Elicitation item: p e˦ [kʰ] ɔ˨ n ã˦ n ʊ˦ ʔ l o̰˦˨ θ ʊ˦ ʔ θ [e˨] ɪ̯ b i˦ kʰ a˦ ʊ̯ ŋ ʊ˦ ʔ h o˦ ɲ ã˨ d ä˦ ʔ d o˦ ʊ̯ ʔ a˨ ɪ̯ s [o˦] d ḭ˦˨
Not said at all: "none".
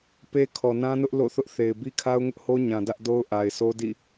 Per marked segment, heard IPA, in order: kʰ, e˨, o˦

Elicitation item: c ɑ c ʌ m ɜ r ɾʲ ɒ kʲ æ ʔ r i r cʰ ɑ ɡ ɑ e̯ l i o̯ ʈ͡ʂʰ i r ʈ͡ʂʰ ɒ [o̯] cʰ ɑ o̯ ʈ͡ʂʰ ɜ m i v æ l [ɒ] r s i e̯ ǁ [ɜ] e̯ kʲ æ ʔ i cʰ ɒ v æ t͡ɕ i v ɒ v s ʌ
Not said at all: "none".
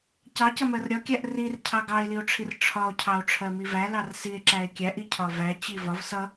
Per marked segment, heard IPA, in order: o̯, ɑ, æ

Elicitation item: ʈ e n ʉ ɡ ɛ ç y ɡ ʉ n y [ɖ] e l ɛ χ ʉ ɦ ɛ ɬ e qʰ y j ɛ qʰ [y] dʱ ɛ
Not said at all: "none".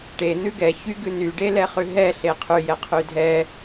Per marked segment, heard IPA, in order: ɖ, y

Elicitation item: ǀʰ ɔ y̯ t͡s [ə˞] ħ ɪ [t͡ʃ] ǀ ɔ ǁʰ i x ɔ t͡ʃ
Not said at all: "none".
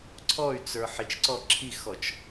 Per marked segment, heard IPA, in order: ə˞, t͡ʃ

